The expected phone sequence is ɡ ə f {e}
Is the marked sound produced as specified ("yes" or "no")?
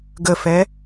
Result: no